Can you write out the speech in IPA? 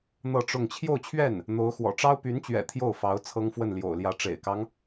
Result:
n̪ ɤ˥˧ ʈ͡ʂ ʊ˥˧ ŋ t͡ɕʰ j o˥˧ ʊ̯ t͡ɕʰ ɥ ɛ˥˩ n | n̪ o˧˥ ʊ̯ x w ɔ̰˨˩ ʈ͡ʂ ɑ˥ ʊ̯ p y˧˥ n t͡ɕ ɥ ɛ̰˨˩ t̪ʰ j o˥˩ ʊ̯ f ɑ˧˥ ʊ̯ t͡sʰ ɤ˥ ŋ f w ə˥˩ n l j o̰˨˩ ʊ̯ l j ä˧˥ ʈ͡ʂ ḛ˨˩ ɪ̯ k ɑ˦ ŋ

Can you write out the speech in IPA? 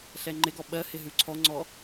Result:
ɬ ɛ ŋ͡ǃ ɪ ɡ ɔ ɓ ɜ h ɪ ɦ ʉ ǀʰ ɔ ŋ͡ǀ ɔ

